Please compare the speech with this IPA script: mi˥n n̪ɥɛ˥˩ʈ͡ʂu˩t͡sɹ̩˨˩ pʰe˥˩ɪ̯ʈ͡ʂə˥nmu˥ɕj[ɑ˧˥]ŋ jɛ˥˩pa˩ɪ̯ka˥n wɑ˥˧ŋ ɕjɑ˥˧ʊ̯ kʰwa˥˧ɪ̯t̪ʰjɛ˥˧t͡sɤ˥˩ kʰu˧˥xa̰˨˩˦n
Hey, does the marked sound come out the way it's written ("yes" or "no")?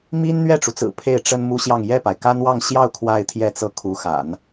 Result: no